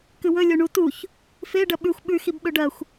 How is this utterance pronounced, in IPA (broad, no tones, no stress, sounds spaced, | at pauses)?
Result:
k ɨ w ɵ lʲ o ɳ u t u ç | f e ɖ ɐ ɓ ʉ xʷ ɓ ʉ x i b ɓ ɵ ɖ ɐ xʷ